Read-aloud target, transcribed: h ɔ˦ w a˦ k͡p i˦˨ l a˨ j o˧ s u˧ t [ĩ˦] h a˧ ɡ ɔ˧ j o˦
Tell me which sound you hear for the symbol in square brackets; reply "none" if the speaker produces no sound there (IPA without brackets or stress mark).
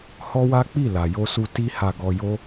i˦